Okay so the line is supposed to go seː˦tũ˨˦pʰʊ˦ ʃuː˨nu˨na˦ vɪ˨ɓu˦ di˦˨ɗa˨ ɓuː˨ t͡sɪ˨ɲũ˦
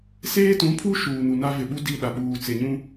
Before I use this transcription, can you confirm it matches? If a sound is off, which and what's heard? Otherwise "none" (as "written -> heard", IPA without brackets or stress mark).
ʊ˦ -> u˦